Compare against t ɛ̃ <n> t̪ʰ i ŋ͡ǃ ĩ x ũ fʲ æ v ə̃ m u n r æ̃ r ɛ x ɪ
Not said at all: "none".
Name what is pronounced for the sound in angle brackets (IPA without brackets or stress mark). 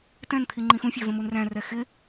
n